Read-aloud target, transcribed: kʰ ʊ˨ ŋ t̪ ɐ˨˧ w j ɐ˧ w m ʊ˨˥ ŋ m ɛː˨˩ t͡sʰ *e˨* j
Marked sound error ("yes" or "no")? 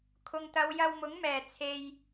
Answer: no